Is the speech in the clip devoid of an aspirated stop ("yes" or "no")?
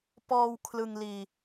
no